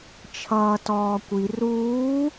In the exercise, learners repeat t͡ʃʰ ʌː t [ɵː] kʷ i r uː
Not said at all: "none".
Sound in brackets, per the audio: ɔː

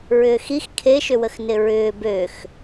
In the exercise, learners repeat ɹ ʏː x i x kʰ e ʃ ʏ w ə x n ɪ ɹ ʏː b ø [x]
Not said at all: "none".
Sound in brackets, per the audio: x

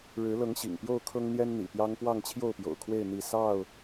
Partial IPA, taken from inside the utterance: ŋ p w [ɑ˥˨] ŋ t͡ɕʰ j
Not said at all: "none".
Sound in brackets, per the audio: ɑ˥˨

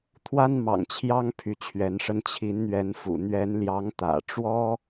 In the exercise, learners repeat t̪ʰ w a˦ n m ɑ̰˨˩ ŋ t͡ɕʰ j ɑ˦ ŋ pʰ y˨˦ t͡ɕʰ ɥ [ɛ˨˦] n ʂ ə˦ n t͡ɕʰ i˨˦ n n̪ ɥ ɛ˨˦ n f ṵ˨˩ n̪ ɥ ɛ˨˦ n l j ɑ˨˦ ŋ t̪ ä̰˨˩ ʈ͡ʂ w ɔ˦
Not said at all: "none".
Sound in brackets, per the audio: ɛ˨˦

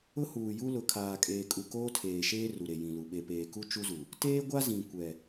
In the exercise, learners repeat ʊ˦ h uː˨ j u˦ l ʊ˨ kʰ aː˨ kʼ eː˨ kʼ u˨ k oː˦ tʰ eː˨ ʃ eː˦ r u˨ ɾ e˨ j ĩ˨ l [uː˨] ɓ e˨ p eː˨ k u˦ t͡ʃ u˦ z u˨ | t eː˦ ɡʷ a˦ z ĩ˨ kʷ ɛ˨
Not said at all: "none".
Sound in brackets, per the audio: u˨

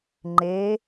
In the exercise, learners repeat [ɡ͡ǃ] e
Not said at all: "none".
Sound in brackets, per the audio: ŋ͡ǃ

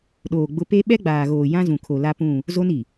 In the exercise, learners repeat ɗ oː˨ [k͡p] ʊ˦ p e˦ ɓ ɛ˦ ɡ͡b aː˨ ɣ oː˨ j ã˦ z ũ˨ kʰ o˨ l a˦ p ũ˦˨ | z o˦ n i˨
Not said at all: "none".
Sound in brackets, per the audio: ɡ͡b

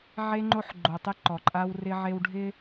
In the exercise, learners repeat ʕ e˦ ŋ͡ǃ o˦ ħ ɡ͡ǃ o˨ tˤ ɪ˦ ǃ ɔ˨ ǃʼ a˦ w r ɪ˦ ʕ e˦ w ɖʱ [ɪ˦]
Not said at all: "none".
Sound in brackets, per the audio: ɪ˦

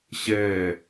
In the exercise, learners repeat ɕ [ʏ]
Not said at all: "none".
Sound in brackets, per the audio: ɛ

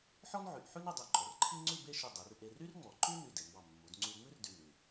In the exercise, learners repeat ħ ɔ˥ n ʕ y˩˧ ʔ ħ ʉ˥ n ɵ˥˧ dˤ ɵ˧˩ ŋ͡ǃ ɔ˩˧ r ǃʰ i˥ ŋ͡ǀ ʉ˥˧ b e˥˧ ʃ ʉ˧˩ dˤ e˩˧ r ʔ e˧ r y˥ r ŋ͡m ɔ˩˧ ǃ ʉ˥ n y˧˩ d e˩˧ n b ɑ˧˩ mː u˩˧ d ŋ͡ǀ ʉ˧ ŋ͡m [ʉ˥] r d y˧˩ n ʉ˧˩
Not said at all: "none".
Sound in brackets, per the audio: ʉ˥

